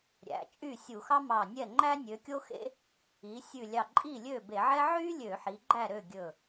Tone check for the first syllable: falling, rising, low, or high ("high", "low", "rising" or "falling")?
rising